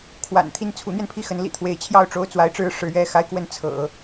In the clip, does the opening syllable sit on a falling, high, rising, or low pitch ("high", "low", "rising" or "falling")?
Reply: low